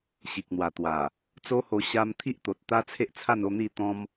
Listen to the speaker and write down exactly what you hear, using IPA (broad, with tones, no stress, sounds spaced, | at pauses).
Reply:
ɕ i˨ k̚ n̪ w a˨˩ t̪ w a˨˩ | t͡s o˦ h o˧ ɕ a˧ m t̪ʰ i˦ ʔ t̪ o˨ t̚ t̪ a˦ t͡sʰ e˦ ʔ t͡sʰ a˥˧ n o˥˧ n̪ i˥˧ t̪ ɔ̃˦ m